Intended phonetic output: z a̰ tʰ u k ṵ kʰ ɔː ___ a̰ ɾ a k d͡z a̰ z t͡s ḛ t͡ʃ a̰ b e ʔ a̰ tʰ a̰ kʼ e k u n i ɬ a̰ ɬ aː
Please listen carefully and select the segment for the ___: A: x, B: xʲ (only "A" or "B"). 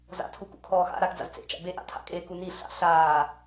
A